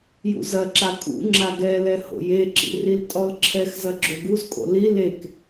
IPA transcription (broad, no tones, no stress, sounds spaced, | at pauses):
j ṵ z ɐ ǁ a kʼ ṵ ŋ͡ǁ a ɡ ɛ l ɛ h o̰ j e ǁ ḭ r i l tʼ ɔ l ǁʰ ɛ x z ɐ ɡ͡ǁ o ɡ u z kʼ o̰ l i l e k